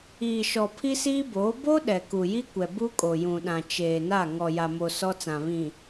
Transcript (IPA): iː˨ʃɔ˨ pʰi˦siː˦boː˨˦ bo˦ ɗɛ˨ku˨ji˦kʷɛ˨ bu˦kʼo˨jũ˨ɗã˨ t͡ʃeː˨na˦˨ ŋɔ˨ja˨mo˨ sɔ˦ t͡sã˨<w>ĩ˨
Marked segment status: incorrect: β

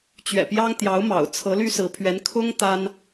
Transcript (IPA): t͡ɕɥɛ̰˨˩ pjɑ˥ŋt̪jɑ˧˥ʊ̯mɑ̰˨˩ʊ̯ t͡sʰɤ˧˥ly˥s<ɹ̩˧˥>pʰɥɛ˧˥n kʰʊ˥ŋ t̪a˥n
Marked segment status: correct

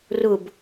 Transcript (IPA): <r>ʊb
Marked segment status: correct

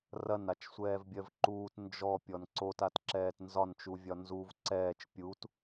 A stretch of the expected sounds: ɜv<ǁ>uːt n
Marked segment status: incorrect: ǃ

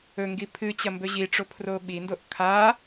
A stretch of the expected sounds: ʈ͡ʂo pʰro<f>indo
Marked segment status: incorrect: ɓ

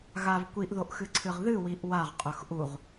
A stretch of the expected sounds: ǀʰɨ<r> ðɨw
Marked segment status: incorrect: ʁ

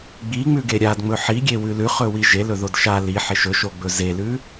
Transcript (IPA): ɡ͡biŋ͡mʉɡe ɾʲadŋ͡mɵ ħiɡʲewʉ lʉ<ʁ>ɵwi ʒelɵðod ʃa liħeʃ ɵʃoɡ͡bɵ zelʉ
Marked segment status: incorrect: χ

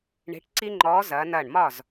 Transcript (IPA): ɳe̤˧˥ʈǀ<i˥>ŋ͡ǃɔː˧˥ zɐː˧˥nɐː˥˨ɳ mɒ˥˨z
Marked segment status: correct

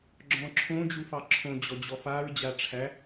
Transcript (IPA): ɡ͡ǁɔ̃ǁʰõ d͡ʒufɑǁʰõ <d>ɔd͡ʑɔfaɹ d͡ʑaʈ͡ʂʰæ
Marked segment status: incorrect: d͡ʑ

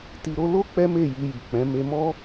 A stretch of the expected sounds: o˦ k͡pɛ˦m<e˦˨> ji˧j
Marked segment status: correct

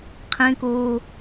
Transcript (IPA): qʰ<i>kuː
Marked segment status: incorrect: ĩ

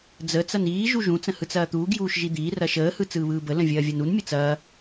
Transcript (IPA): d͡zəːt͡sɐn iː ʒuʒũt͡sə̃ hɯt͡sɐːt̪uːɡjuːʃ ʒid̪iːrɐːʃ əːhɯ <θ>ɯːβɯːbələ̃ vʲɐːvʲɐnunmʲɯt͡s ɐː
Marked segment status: incorrect: t͡s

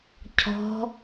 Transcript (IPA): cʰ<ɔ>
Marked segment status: incorrect: ɔ̤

